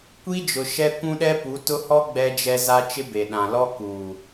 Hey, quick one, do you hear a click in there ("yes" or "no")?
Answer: no